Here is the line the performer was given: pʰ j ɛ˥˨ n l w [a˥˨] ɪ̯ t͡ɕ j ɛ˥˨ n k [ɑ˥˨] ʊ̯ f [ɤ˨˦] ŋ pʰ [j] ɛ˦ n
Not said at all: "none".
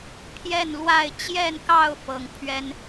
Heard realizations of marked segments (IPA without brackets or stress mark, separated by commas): a˥˨, ɑ˥˨, ɤ˨˦, ɥ